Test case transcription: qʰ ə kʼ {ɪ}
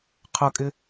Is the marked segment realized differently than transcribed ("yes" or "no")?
no